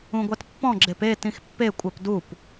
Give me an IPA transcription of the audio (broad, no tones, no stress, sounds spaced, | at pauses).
ũ ɡʷ a t pː ɔ̃ ɡ͡ǁ e p e t ĩ x pː e kʷʼ a p d u p